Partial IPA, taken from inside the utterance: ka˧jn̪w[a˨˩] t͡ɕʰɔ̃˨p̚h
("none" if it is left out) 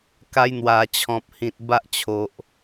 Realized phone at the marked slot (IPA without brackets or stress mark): a˨˩